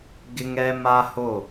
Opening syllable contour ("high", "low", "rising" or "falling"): high